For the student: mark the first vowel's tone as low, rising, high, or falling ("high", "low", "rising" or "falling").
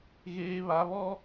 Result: high